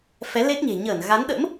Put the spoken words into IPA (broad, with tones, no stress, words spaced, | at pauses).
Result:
fɛ˨˦le˦˥t̚ɲe̤˨˩ ɲəː˧˩n ɣa˨˦nɗə̰˧˥m